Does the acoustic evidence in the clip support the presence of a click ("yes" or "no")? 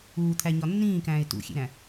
no